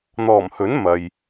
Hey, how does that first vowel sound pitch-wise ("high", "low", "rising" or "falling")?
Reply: low